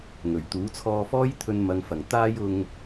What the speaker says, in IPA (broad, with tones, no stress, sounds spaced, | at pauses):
ŋ ɵ˨˩ ɥ t̪ uː˨˥ t͡sʰ ɔː˧ f ɔː˥ j t̪ʰ ɵ˧ n m ɐ˨˧ ŋ f ɐ˨˩ ŋ t̪ aː˧ j ʊ˨ ŋ